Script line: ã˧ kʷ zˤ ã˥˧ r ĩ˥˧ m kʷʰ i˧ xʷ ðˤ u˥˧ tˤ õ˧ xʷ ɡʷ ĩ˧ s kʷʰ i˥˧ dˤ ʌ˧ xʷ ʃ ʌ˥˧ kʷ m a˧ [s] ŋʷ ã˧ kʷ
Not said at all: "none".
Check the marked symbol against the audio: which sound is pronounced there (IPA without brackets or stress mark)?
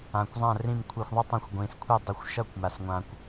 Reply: s